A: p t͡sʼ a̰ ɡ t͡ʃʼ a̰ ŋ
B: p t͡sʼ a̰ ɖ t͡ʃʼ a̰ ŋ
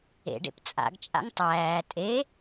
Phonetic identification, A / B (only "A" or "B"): A